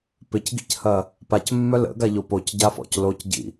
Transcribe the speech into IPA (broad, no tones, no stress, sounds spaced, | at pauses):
p ɪ c ɡ ḭ c h ɐ | p a c mː œ l ə̰ ɡ a ʎ o p o c ɟ a f ɔ̰ c l o c ɟ ḭ